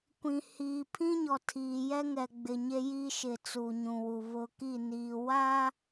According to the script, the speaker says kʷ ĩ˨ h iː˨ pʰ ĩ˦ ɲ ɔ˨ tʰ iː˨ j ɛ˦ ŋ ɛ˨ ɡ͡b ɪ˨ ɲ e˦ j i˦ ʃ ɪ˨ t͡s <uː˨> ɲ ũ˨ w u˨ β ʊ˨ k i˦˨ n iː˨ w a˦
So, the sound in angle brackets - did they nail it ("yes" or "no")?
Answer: yes